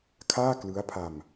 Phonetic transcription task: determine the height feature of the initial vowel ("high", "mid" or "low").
low